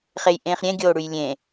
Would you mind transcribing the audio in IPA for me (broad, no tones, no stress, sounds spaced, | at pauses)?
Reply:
χ e j ʔ ẽː χ ɾʲ ẽ ɡʲ oː ɽ ʉ j lʲ ẽː